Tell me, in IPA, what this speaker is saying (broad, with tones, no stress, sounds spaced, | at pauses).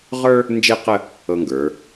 ʁ ə˞˥ | n d͡ʒ e˥˧ q ə˥˧ | ɤ˧ ŋ ɡ ə˞˩˧